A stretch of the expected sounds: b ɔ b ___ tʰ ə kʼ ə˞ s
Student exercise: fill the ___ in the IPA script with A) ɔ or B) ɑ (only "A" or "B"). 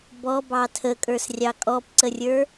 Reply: B